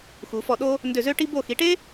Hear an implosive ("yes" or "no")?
yes